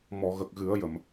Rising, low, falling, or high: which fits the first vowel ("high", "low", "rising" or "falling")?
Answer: low